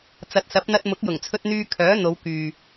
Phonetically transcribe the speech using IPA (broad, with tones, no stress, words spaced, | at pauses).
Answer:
t͡sɐ˨˥t̚sɐ˨˥p̚n̪ɐ˧t̚ mʊ˨˥k̚jʊ˨˩ŋt͡sʰɵ˧t̚n̪yː˧ kʰœː˨˥ n̪o˨˧w kyː˨